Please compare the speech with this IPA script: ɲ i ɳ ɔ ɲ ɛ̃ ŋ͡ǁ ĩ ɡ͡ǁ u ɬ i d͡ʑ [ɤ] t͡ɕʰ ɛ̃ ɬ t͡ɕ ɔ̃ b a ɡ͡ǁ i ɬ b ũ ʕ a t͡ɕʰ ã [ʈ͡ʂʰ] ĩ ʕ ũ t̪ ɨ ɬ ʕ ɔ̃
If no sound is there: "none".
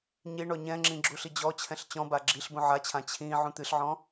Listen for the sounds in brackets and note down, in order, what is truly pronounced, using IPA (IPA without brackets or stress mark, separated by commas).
ɔ, t͡ɕʰ